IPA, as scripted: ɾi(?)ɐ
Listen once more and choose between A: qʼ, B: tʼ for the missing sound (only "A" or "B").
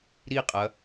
A